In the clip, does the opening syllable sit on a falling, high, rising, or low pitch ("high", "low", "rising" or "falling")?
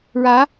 rising